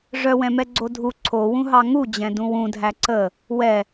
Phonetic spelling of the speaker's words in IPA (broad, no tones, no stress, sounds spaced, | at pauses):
ʐ œ w ɛ̃ m ɛ ɡ͡ǀ o dʱ u ǀʰ o w ũ ɦ ɑ ŋ u d͡ʑ ɛ̃ d ũ w ũ dʱ æ ǀ ə | w ɛ